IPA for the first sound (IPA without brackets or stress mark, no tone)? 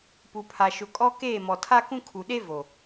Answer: p